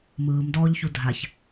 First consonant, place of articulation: labial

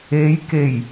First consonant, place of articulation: palatal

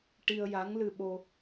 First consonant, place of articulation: retroflex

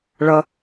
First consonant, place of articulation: retroflex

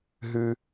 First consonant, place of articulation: glottal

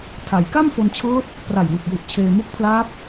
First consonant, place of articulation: alveolar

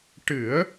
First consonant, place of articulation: retroflex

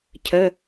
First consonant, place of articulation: palatal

